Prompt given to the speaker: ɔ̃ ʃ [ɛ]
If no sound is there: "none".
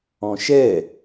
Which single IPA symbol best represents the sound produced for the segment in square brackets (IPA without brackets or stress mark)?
ɛ